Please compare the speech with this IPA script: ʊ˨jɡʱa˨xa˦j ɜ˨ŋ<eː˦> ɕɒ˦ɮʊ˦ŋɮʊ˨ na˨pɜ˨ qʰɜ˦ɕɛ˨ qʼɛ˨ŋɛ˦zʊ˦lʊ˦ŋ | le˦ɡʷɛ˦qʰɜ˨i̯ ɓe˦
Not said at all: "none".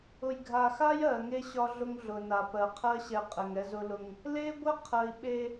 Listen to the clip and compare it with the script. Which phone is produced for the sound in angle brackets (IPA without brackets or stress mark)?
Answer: e˦